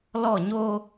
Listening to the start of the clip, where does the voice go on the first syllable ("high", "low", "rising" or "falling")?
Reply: falling